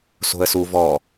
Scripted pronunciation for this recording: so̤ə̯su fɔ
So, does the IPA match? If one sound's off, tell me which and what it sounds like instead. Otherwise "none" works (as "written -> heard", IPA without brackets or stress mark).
f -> v